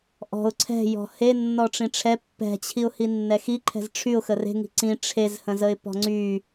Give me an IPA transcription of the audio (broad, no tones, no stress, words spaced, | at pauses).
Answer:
ʔɔ̤ʊ̯ ǀʰɛ̤jɔ̤ he nːɔʈ͡ʂĩʈ͡ʂʰɛ pːɛ̤t͡ɕʰiʊ̯ hinːɛxiǃʰɛ̤z ʈ͡ʂʰyʊ̯xə re̤ŋi̤ ǀĩ ʈ͡ʂʰezhə̃zəɪ̯ pɔ̤ŋ͡ǀy